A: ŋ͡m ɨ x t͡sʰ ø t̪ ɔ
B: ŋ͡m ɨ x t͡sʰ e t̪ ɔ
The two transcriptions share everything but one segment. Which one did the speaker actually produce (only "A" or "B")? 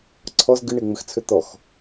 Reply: A